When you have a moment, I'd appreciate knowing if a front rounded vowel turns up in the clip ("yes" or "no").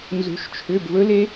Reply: yes